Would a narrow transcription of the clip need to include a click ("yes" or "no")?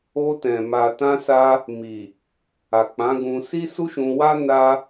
no